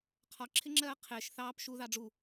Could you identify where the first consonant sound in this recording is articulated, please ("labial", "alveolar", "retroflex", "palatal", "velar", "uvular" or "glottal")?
uvular